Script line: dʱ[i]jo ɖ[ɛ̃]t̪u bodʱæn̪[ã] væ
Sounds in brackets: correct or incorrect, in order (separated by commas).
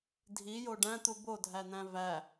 correct, incorrect, incorrect